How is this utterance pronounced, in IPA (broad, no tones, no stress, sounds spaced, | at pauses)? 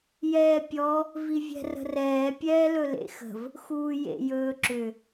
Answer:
j ɛː pʲ ɔ | v i vʲ ɛ̤ r ə̤ r ɛː pʲ ɛː l ɵ l ḛ x ə̤ v | x uː j ḛ j ɵː ǁ ʏ